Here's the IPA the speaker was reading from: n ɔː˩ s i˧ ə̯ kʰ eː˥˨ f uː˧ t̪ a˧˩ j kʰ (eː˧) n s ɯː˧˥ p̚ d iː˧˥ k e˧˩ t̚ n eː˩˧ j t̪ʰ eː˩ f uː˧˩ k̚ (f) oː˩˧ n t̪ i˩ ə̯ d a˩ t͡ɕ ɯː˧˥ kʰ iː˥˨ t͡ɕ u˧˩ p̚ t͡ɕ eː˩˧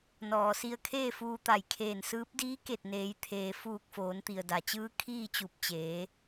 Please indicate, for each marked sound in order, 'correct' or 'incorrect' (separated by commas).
incorrect, correct